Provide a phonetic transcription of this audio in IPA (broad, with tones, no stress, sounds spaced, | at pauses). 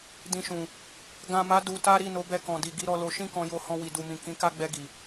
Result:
d ĩ˧ ʃ ũ˨ | ɡ ã˨ m a˨˦ d u˧ t a˦ ɾ i˦˨ n o˨˦ b ɛ˧ k ɔ̃˨ d i˨ ɡ i˧ ɾ ɔ˧ l o˧ ʃ ĩ˦ k ɔ̃˧ j o˧ h ɔ̃˧ w i˨ d u˨ m ĩ˨ k ĩ˨˦ k a˦ ɡ͡b ɛ˧ ɡ i˨